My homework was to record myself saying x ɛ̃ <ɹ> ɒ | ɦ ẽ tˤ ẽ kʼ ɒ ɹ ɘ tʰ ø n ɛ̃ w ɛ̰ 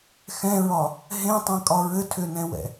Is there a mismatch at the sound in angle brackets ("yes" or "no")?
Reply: no